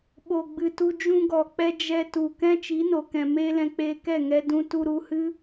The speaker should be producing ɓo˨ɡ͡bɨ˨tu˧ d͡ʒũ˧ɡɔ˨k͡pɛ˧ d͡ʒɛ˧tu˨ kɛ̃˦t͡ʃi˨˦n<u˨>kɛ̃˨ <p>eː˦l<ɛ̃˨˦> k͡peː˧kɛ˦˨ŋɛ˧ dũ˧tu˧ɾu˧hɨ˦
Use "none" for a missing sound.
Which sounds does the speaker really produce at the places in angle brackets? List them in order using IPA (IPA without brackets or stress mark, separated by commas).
o˨, m, ɛ̃˧